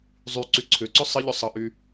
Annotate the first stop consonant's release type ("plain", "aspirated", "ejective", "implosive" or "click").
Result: click